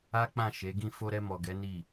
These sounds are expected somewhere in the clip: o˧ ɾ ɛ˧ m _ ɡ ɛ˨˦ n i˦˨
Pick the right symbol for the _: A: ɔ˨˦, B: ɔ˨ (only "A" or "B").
B